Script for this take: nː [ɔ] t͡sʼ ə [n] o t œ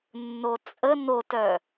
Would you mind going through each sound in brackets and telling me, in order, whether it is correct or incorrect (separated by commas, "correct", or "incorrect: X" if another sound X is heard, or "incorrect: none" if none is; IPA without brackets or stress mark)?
incorrect: o, correct